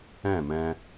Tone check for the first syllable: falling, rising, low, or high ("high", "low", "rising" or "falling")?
falling